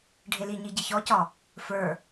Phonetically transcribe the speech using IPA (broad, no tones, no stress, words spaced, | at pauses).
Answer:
ɖʱeliɲi ɟiçɔcɒ | fə˞